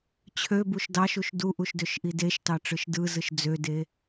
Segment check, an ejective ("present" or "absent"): absent